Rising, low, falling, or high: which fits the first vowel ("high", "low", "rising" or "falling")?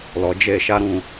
low